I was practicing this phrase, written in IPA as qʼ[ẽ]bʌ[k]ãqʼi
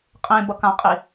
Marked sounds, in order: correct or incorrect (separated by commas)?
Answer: correct, correct